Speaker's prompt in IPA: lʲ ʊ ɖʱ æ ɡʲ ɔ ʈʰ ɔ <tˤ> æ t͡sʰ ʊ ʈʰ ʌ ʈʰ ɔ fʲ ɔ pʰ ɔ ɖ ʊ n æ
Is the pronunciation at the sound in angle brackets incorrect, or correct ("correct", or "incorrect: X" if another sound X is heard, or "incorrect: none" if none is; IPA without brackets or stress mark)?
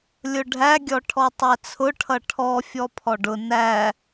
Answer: correct